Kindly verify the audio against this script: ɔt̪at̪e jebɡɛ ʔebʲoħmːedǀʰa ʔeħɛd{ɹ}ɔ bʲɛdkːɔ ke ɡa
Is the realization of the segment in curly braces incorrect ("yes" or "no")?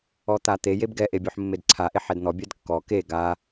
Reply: yes